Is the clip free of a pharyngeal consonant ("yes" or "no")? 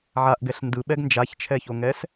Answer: no